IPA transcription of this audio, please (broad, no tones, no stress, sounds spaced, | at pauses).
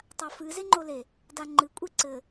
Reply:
tˤ a f ɨ z e ŋ͡ǃ o l e | d a ŋ͡ǃ ɨ kʷʼ i ǀ ɘ